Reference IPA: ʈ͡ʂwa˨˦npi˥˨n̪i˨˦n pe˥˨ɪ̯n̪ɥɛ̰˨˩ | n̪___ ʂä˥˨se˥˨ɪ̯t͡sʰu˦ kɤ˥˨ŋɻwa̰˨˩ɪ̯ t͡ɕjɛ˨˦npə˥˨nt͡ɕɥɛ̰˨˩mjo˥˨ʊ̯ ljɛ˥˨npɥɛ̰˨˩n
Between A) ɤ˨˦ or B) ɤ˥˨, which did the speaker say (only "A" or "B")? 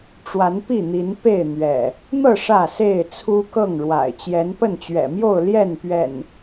B